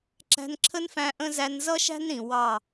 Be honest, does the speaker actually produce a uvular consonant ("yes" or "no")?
no